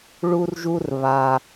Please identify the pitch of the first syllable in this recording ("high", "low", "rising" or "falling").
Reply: high